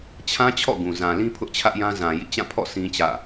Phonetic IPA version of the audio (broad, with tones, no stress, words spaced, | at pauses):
t͡ɕʰã˦t͡ɕʰɔ̰˦˨ ɡũ˨ zã˨lĩ˦ pʰʊ˦ʔt͡ɕʰä˦ʔjã˦ zã˨jḭ˦˨ t͡ɕã˦˨pʰɔ̰˦˨ sĩ˦t͡ɕä̰˦˨